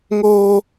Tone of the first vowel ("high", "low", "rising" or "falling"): high